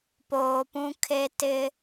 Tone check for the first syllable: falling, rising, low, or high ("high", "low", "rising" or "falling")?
low